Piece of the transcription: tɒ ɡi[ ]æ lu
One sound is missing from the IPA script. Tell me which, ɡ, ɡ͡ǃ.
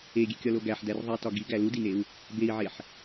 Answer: ɡ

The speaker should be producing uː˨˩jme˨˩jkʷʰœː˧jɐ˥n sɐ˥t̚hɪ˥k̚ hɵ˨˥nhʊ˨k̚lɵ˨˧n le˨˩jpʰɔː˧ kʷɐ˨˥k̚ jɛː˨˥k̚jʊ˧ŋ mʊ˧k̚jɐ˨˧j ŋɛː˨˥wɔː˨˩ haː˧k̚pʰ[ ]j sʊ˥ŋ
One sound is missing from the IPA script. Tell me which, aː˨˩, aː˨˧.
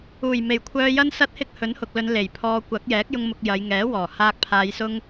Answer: aː˨˧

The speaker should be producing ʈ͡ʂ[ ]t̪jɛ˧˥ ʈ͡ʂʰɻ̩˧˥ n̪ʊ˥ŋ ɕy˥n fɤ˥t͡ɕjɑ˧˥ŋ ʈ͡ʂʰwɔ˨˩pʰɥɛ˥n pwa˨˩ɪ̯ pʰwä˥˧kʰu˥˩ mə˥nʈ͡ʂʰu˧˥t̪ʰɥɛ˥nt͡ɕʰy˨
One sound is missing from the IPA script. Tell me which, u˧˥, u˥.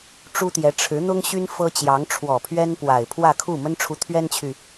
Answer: u˥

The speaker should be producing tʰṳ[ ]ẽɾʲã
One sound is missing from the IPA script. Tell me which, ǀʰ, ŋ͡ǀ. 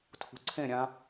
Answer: ǀʰ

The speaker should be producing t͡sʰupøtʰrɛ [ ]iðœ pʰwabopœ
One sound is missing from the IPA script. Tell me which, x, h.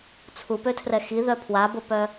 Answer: x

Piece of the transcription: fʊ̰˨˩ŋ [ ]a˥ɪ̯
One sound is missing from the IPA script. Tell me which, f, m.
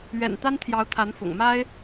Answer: m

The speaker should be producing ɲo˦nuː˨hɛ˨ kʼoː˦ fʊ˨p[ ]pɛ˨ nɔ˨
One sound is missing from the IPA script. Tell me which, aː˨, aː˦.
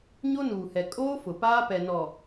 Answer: aː˦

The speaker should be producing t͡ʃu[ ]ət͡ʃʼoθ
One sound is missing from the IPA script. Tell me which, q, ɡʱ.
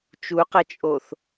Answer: q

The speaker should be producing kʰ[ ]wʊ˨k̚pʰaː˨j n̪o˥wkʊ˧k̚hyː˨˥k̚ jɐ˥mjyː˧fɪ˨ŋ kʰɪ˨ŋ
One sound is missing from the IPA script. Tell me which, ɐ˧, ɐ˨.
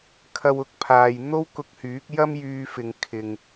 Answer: ɐ˧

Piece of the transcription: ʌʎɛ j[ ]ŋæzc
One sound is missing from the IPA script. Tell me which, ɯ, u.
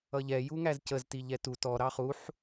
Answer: u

